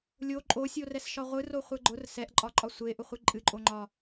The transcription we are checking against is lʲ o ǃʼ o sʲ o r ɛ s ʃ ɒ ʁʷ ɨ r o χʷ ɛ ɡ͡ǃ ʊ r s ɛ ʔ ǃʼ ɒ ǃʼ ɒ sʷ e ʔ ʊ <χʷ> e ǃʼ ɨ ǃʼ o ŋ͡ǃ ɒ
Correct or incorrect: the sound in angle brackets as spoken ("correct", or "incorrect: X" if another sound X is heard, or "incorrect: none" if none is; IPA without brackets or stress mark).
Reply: correct